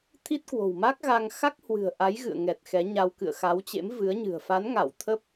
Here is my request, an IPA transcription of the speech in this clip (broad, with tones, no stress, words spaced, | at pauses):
t̪ʰi˦˥t̚kwo̤˨˩wma˦˥k̚ɣaː˧ŋ xa˦˥k̚hwɨ̤˨˩ə̯ ʔa˨˦jɣɨ̰˧˨ə̯ŋɛ˨˩t̚ xɛ˨˦ɲa˧w kɨ̰˧˨ə̯xa˨˦wt͡ɕḛ˧˥m vɨ˨˦ə̯ɲɨ̤˨˩ə̯ fa˨˦nŋa˧˩w t̪ʰə˦˥p̚